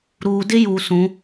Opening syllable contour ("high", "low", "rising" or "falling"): low